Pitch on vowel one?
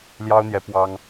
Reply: high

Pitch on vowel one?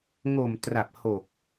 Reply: low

